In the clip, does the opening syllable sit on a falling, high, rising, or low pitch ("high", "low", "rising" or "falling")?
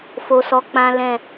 low